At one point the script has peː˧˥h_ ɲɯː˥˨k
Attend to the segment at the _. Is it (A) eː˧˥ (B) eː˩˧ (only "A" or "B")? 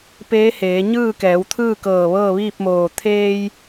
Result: B